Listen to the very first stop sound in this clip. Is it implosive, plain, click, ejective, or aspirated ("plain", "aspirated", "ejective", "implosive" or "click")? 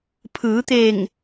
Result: aspirated